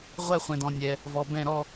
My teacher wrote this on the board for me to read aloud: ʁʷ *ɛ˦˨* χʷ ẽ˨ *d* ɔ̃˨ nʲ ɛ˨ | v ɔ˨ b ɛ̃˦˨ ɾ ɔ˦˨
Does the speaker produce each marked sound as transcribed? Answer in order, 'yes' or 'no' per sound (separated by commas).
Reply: yes, yes